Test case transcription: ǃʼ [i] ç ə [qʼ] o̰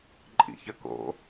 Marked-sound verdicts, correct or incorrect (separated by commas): incorrect, incorrect